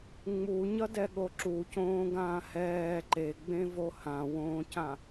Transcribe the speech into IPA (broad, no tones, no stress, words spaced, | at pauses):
ŋ͡muɲʌdɛɠo ǁucõːɡãː hɛː ǃeɡ͡bẽvo hãwõːcã